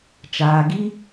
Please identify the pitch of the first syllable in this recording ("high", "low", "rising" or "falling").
low